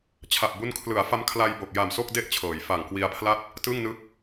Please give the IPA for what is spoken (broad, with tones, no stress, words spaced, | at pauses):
t͡ɕʰa˨˩p̚bu˦˥n kʰlɯ˩˦a̯fa˧mkʰla˧jbo˨˩k̚ ja˨˩mso˥˩k̚ de˥˩ʔt͡ɕʰɤː˩˦j fa˨˩ŋkwi˧a̯pʰla˥˩t̚ | tɯ˥˩ŋnɯ˦˥k̚